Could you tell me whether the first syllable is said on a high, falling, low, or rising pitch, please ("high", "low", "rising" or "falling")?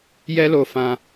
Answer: high